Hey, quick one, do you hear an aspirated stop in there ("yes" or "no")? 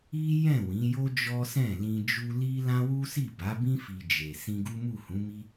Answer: no